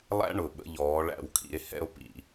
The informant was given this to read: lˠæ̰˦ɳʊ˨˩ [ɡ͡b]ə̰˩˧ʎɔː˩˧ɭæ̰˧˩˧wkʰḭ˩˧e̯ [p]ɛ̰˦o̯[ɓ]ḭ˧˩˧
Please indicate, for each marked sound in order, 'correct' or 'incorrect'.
incorrect: ɓ, incorrect: h, incorrect: p

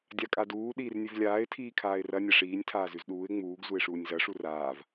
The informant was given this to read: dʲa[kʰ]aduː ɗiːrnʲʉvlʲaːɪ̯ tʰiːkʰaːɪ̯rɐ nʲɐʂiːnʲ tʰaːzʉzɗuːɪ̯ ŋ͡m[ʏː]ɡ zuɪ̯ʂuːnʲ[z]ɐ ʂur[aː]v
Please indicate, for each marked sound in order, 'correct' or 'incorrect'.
incorrect: kʼ, incorrect: uː, correct, correct

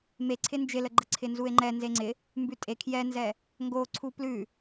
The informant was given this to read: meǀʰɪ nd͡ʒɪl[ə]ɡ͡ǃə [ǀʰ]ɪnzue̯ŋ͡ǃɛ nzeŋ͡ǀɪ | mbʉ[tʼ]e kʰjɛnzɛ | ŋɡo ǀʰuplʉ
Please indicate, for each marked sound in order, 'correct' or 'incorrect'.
correct, correct, correct

